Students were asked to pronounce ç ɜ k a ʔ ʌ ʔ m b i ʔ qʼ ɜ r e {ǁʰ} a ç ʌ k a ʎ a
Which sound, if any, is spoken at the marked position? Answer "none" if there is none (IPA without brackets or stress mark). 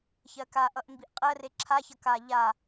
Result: ǁʰ